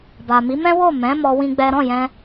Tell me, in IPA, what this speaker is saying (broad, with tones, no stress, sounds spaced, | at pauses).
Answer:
b a˨ m i˨˦ m ɛ̃˦ w o˦˨ m ɛ̃˨˦ m ɔ˦ w ĩ˦ ɡ͡b ɛ˦ ɾ ɔ̃˦˨ j ɛ̃˧